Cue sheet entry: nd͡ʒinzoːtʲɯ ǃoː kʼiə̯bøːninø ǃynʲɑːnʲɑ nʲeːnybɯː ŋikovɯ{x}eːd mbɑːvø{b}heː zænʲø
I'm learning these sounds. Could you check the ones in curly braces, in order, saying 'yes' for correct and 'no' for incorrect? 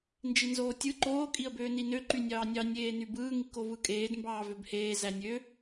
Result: no, yes

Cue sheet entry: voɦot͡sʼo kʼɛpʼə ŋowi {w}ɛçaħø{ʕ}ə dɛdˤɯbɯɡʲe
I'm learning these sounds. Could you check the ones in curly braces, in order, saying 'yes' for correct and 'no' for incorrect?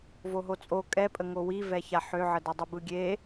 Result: no, yes

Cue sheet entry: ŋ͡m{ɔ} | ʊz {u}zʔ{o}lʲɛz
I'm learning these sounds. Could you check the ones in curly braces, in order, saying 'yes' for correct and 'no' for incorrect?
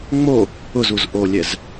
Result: no, yes, yes

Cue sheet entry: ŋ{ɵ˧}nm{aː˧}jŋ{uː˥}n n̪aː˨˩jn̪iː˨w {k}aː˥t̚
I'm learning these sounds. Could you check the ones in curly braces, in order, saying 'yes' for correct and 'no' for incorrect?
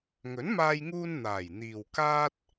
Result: no, yes, no, yes

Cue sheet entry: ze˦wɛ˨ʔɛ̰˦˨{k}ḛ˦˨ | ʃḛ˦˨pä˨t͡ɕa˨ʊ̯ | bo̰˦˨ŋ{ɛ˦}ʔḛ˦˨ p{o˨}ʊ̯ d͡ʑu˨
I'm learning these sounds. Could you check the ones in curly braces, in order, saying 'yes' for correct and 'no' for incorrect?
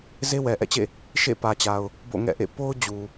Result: no, no, no

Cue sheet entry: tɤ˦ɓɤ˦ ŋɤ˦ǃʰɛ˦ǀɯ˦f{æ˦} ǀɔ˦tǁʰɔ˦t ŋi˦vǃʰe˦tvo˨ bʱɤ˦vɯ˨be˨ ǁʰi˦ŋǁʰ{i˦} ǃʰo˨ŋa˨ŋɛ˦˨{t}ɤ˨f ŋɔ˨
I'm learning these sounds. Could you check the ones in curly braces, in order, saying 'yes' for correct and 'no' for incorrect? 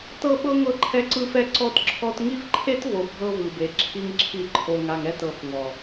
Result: no, no, yes

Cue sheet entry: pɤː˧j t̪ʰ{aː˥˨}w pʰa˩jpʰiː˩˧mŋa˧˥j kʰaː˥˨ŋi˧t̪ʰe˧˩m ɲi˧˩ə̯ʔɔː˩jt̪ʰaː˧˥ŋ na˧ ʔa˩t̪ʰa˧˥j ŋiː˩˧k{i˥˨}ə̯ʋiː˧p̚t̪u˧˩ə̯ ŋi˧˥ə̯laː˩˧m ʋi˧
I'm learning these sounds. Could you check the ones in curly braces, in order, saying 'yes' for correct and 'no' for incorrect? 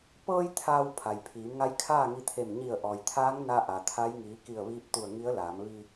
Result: no, no

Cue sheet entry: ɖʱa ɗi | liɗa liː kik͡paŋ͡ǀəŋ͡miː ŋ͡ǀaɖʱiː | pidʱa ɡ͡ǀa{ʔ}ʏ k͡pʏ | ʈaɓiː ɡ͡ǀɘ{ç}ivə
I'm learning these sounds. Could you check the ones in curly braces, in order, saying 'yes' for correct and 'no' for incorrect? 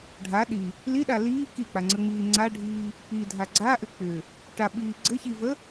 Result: yes, yes

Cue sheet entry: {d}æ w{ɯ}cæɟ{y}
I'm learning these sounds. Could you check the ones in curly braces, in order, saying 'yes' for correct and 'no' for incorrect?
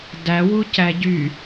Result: yes, no, yes

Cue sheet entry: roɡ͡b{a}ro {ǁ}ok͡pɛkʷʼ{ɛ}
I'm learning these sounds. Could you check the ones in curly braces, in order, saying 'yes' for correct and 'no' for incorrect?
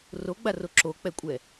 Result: yes, yes, yes

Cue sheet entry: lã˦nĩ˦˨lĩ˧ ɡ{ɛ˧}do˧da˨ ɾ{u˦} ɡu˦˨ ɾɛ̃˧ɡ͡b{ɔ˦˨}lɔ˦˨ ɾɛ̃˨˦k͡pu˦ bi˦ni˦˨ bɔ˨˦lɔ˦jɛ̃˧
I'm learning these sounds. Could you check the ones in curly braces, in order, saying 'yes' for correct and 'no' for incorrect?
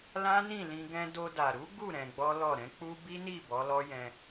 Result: no, no, no

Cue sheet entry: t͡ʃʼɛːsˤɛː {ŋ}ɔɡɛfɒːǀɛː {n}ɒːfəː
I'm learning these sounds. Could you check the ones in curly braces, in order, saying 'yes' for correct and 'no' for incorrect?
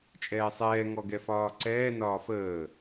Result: yes, yes

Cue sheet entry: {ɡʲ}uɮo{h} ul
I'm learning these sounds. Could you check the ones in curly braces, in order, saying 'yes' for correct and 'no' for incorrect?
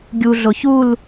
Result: yes, no

